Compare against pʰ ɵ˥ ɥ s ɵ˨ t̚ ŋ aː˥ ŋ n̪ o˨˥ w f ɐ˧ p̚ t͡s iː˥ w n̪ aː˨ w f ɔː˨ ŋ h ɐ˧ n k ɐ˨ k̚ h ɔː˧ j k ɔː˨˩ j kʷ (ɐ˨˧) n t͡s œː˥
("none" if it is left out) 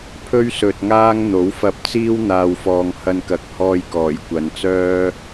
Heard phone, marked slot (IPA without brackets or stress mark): ɐ˨˧